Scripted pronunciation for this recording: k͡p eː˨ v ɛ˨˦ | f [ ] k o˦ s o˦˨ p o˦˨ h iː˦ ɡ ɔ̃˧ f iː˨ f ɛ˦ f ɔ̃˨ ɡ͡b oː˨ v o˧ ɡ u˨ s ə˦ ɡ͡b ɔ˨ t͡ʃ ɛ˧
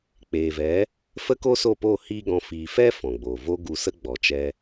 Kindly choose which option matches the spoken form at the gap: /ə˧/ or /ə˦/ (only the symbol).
ə˦